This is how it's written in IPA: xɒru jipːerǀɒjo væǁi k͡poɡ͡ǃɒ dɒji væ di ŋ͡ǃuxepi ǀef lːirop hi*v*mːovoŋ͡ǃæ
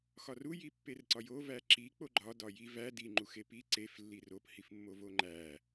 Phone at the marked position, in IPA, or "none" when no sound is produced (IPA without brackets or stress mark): f